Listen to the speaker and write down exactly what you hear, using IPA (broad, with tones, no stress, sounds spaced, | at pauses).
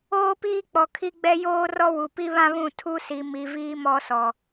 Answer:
oː˦ p iː˦ k͡p ɔ˨ kʰ i˦ ɡ͡b ɛ˦ j oː˦ r ɔ˦ w u˨ p i˦ β ã˦ β ũ˦˨ tʰ u˦ s i˨ m i˨ v iː˦ m ɔ˦ s ɔ˨